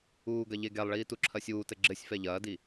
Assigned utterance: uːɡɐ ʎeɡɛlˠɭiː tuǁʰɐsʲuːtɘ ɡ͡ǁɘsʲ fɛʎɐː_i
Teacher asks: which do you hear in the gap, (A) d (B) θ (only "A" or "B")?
A